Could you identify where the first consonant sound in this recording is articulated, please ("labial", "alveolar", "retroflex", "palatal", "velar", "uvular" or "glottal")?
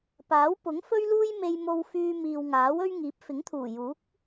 labial